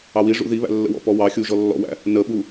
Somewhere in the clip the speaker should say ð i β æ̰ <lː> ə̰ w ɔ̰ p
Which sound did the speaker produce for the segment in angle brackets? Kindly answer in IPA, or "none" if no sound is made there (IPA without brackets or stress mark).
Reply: lː